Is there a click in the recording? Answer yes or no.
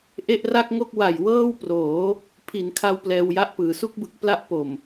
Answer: no